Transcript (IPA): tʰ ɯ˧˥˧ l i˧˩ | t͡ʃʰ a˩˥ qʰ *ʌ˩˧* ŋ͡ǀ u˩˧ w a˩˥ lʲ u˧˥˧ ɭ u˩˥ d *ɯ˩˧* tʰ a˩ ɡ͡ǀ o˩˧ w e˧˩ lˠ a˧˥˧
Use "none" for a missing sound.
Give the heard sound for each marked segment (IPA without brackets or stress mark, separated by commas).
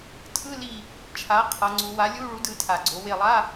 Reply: ʌ˩˧, ɯ˩˧